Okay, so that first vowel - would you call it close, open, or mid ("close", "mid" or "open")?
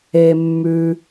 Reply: mid